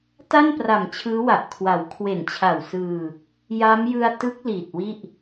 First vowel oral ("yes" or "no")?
yes